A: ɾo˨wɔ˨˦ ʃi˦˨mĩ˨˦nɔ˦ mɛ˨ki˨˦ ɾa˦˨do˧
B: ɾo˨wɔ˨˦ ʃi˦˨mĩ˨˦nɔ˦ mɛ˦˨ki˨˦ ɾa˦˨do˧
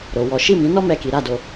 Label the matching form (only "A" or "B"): B